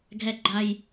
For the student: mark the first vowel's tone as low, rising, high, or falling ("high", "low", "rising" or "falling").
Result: high